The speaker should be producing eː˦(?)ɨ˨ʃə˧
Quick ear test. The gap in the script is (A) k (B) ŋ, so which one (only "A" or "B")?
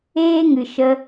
B